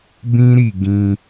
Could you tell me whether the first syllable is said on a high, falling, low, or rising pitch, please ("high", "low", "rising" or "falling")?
high